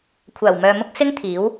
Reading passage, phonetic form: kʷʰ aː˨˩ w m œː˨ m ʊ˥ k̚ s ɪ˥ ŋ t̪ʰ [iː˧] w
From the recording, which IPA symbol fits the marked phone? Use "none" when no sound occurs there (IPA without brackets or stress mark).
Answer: iː˨˥